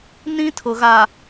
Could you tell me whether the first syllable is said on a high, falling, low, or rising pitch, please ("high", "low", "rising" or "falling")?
high